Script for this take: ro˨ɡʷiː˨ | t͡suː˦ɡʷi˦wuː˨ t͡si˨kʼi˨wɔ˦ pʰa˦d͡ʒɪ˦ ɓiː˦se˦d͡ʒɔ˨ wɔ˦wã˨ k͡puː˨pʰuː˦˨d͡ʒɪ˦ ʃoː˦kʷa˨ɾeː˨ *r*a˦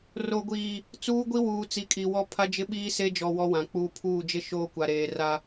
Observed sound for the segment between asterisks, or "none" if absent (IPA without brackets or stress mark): r